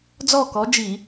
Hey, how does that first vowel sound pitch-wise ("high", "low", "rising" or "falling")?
falling